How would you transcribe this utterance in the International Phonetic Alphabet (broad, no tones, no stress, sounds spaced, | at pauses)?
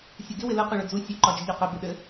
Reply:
sʲ u ɡ ɪ w ɪ l ə q ɵ ɭ ɵ d͡z u sʲ ɘ ǃ ɒ d͡ʒ ɪ ʎ ɒ q ɘ b ɪ ɗ ɘ